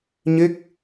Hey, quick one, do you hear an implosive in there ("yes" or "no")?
no